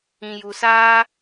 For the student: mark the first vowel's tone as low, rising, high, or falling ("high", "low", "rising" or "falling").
low